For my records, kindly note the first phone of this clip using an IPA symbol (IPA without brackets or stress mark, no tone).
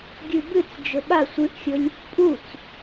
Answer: ɡʲ